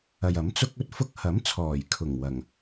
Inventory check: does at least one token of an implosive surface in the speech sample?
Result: no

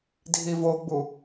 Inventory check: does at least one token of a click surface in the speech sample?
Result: no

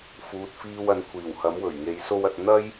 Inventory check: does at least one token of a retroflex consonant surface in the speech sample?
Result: no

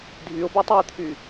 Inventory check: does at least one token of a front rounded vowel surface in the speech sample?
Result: yes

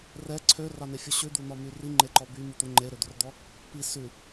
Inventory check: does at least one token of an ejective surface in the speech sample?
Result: no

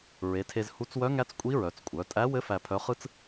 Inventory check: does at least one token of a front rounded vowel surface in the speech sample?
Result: yes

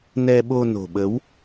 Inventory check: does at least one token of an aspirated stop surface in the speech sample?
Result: no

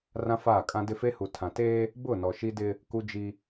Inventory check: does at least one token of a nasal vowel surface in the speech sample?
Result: yes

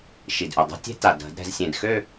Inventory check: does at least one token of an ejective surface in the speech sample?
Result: no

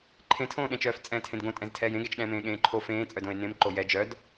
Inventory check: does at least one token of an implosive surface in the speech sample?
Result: yes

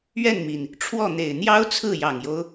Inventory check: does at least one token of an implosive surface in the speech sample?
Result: no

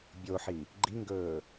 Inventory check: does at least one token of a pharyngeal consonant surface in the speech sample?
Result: yes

